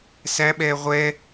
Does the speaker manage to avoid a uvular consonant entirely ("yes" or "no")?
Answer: no